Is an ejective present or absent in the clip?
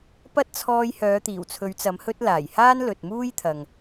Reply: absent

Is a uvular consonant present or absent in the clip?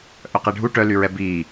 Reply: present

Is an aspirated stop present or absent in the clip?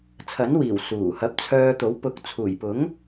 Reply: present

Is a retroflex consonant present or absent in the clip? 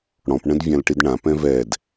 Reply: present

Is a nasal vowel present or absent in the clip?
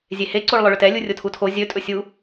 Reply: absent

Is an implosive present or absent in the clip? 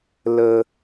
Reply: absent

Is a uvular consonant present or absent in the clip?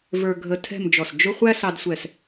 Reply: present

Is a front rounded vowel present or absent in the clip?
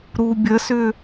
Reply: present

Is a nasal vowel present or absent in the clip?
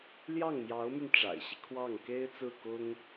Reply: absent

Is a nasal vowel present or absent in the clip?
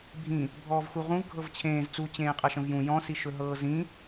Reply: present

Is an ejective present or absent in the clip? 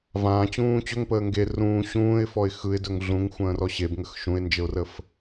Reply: absent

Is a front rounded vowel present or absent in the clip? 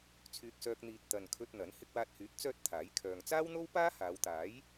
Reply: present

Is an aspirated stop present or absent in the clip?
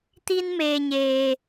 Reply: absent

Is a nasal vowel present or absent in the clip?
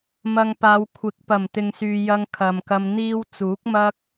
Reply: absent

